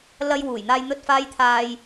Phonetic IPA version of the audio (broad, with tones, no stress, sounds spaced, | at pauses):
l ɐ˧ j w uː˨˩ j n̪ aː˧ j n̪ ɵ˧ t̚ f aː˧ j t̪ʰ aː˨ j